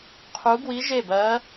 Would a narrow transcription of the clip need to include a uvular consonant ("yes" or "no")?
yes